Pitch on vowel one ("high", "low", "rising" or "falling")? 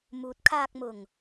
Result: rising